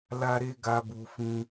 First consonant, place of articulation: alveolar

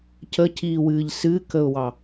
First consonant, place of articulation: palatal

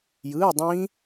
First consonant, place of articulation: palatal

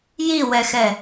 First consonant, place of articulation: palatal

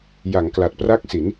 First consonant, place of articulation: palatal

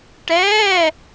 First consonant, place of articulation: retroflex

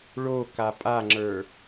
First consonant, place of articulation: retroflex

